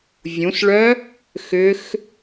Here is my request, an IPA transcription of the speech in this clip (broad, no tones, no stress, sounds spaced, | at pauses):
vʲ ũ s ɭ œ | x ʏ x